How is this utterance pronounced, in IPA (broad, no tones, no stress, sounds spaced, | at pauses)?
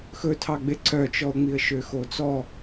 x ɵ tʰ ɑ ɡ͡b e ǀ œ t͡ʃ ɔ ʊ̯ ŋ͡m i ə̯ ʃ ø x o t͡s ɔ